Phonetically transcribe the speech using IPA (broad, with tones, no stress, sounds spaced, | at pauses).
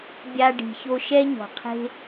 bʲ a˧ ɖ i̤˨ ç o˦ ʃ ɛ˦ ɲ ɔ̤˨ qʰ e̤˦